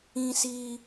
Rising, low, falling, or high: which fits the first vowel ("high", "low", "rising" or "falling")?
high